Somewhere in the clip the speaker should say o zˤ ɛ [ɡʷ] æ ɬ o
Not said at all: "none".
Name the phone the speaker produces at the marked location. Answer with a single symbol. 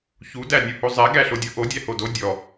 ɡ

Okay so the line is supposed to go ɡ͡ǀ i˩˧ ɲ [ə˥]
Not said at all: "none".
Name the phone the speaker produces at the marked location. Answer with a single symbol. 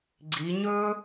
ɵ˥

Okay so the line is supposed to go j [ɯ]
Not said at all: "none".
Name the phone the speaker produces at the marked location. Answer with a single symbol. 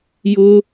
ʊ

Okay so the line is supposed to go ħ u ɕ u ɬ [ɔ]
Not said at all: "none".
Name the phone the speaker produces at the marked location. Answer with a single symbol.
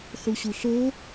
o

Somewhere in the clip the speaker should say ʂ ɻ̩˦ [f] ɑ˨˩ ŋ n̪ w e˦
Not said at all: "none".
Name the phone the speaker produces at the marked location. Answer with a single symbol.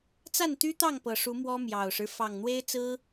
f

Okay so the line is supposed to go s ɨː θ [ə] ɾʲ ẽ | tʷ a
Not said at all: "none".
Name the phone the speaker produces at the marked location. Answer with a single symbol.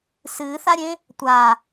a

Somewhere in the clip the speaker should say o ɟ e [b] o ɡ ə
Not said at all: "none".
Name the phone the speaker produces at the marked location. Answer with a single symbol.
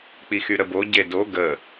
d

